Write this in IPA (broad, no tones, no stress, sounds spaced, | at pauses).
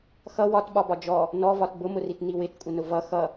x ʌ w ɒ t ɓ ɒ b ɒ d͡ʒ ɔ | n ɔ v ɒ t b ʊ m ʊ r i t n i w ɪ t kʷʼ ɪ n ʊ v ʌ x ʌ